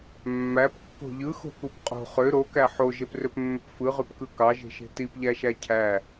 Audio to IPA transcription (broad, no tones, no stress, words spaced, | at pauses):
mːæpkːo̤ ʎɯxo̤kup qʼo̤ χø ɾokæ ħoʒeprøpmːøp fɯʁypkɯ kɑʒe̤ʃe̤ tipʎæʃæ cʰæ